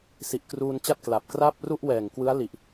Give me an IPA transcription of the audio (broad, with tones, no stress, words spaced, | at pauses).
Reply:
si˨˩ʔkruː˧nt͡ɕa˥˩t̚ kla˨˩p̚kra˥˩p̚ ru˥˩ʔwɛː˨˩ŋ kwɯ˦˥a̯li˨˩ʔ